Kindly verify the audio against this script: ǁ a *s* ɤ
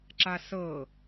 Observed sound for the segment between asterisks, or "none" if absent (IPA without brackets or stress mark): s